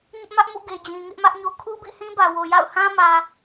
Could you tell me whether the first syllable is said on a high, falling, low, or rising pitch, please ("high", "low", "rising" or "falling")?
high